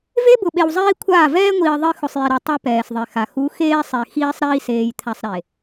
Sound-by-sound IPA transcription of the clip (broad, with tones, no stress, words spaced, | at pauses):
ve˦bʊ˨ɓe˨w zˤiː˦kʷʰaː˦˨ vɛː˦ŋʷiː˨ ðˤi˦ xʊ˨sˤji˨ɾo˨ tˤe˦ pɛː˨sðˤe˨xa˨ xu˨˦ xeː˦sˤe˨ xiː˦sˤɾiː˦ seː˨jt̪ʰa˨sˤ ɾe˨